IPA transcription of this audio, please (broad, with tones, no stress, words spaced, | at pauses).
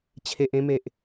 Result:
t͡ɕʰe˨ʔẽ˧me˨ʔ